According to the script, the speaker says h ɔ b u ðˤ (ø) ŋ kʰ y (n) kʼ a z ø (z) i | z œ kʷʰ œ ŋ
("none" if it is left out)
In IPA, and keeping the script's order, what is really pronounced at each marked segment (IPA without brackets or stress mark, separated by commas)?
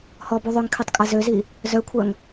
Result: ø, tˤ, z